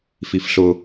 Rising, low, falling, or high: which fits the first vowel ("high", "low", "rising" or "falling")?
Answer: high